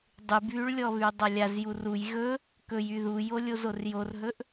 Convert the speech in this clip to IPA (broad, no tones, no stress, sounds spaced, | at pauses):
dˤ y b β y ɭ lʲ ɔ β y dˤ a lʲ a z j u r u j ɣ ɵ | k ɵ j y ð u j o lʲ o z o r j o r ɦ ɵ ʔ